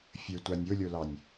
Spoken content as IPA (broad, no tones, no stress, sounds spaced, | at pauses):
fʲ ə˞ tʷ a nʲ o lʲ o l ɑ nʲ